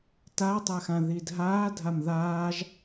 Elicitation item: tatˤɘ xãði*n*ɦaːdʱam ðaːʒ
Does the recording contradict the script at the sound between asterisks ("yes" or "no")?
yes